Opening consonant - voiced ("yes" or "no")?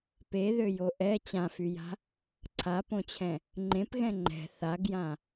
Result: no